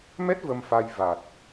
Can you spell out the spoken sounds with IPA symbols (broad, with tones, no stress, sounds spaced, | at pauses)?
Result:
m ɛ˦˥ t̚ v ə˧ m f a˧ j v a˨˩ t̚